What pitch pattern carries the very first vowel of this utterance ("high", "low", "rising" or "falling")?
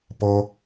high